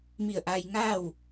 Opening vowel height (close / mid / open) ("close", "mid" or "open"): close